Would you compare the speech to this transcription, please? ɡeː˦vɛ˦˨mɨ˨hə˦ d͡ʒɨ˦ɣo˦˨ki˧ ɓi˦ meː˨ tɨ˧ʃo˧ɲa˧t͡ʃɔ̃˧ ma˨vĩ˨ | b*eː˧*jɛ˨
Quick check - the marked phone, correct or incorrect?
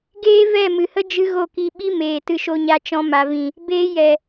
correct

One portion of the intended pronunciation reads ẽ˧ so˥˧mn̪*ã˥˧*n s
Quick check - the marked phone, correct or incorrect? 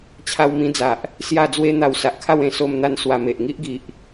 incorrect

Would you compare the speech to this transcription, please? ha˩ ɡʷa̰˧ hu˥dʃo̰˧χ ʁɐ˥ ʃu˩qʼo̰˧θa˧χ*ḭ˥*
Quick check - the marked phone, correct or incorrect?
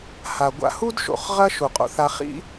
correct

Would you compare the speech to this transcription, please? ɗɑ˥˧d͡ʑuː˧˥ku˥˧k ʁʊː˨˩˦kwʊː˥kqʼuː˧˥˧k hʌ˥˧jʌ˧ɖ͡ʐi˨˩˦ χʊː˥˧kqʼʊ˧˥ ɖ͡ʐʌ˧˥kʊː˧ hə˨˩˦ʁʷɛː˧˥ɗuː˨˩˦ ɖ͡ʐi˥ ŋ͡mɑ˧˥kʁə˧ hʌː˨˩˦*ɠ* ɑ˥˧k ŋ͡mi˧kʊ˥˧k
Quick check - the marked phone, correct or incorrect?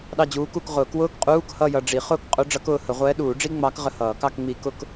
incorrect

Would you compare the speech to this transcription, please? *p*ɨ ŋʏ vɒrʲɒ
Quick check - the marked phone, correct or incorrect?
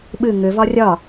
incorrect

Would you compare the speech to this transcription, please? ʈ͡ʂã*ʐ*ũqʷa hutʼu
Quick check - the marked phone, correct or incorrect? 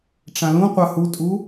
incorrect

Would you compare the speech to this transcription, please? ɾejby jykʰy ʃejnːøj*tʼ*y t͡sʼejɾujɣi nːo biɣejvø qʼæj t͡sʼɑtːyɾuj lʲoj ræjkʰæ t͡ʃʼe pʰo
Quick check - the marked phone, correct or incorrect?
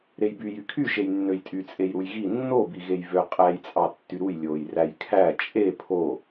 correct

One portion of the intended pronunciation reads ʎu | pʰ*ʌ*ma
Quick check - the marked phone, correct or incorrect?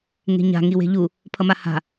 correct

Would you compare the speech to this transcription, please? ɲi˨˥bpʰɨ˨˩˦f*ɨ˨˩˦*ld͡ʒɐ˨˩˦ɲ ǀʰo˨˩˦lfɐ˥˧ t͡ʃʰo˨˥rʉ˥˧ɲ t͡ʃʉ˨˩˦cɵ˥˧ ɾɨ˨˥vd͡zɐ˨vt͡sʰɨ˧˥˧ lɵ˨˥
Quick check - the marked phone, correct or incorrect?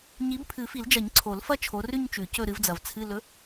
incorrect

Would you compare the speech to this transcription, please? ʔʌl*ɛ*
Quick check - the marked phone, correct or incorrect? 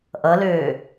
incorrect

